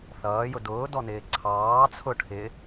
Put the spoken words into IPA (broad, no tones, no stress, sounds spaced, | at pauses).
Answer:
θ ʌː j ʊ d ʊː d ɔ n ɪː ǀʰ ɑː t͡sʰ ʊ ʈʰ ɪ